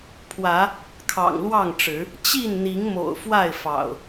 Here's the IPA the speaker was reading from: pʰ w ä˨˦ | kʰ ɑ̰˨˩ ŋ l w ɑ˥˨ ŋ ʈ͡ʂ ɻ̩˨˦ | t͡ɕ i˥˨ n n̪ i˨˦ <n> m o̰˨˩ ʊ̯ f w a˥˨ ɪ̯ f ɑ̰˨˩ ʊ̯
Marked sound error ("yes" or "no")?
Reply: yes